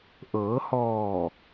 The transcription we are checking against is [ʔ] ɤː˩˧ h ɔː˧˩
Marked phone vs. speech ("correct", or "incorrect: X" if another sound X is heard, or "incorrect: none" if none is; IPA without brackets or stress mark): correct